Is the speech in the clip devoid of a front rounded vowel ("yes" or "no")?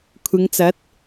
yes